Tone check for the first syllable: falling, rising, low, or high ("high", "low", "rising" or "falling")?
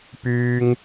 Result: high